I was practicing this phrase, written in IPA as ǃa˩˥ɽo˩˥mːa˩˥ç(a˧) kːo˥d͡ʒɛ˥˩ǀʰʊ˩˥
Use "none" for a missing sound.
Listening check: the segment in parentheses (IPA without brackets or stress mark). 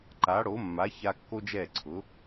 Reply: a˧